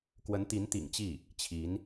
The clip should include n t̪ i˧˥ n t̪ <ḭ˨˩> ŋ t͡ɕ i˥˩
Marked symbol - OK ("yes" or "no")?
yes